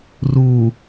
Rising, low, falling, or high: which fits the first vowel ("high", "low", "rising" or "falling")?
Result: low